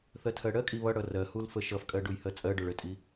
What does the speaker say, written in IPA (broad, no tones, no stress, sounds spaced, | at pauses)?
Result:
θ ɜ tʰ ɜ ɽ ɜ kʼ i β ʌ ɽ ʌ r ɜ h u l f ə ʃ ʌ f kʼ ɜ ɖ u j h ɜ t͡sʼ ɜ ɖ o ɭ ə tʼ i